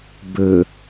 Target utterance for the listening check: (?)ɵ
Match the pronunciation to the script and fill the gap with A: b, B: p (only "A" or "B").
A